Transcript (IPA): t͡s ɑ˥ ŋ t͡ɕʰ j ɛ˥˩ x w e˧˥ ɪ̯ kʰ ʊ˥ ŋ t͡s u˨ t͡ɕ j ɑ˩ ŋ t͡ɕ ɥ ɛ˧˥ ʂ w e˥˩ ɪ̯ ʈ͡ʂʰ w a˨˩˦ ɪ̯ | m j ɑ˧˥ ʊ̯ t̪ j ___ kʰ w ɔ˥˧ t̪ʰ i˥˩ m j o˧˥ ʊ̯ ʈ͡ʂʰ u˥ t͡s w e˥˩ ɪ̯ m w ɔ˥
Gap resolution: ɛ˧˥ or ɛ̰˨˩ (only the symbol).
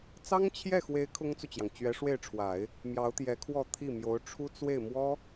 ɛ˧˥